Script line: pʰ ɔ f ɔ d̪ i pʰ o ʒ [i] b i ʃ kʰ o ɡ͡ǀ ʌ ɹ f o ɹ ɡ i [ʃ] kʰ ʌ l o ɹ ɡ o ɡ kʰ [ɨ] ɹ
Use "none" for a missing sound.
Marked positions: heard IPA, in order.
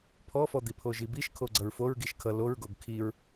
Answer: i, ʃ, i

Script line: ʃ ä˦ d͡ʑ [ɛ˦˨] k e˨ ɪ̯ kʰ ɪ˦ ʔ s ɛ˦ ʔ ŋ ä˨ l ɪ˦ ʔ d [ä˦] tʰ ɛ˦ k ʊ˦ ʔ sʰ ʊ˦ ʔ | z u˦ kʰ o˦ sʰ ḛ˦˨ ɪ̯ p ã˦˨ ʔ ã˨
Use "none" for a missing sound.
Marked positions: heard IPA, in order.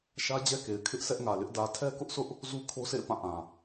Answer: ɛ˦, ä˨

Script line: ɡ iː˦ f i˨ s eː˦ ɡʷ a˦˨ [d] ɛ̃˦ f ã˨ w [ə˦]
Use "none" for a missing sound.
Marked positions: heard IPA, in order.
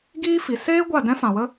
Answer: d, ə˦

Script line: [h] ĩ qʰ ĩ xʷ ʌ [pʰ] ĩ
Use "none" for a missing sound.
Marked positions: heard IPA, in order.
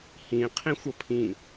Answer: h, pʰ

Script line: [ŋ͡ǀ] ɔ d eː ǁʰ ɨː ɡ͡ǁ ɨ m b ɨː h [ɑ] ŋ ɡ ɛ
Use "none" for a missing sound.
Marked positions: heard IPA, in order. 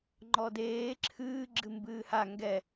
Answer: ŋ͡ǃ, a

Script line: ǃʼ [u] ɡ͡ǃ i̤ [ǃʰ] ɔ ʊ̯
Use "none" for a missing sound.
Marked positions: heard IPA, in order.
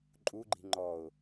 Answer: u, ŋ͡ǃ

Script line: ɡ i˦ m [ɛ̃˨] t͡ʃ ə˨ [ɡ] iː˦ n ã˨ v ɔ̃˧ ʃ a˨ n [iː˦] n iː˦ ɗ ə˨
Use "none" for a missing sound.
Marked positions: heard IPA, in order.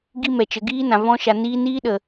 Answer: ɛ˨, ɡ, iː˧

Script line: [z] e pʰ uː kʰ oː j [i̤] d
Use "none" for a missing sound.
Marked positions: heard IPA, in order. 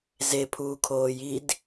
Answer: z, i

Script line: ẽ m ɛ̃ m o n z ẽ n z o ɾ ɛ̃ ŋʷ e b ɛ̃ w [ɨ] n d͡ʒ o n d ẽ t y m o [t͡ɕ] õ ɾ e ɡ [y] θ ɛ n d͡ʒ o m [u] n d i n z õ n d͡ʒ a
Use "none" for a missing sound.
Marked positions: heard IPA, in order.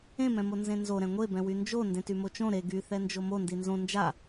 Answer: y, t͡ʃ, y, o

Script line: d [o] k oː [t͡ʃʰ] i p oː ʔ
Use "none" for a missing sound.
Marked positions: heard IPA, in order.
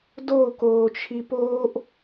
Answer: o, t͡ʃʰ

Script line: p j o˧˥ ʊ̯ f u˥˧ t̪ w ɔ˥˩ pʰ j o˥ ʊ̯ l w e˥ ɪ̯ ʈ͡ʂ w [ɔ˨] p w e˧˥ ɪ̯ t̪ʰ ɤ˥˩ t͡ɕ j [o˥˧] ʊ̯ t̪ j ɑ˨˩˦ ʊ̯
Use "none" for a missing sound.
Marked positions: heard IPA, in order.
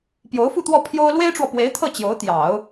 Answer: ɔ˨, o˧˥

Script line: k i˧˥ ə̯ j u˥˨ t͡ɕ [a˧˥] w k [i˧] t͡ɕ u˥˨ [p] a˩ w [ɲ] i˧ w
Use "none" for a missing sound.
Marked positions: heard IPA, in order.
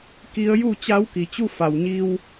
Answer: a˧˥, i˩, f, ɲ

